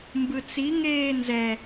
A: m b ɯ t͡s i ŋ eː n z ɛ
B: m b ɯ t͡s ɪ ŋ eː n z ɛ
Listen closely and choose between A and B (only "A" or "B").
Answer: A